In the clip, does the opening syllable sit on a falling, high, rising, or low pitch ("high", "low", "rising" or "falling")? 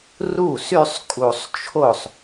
falling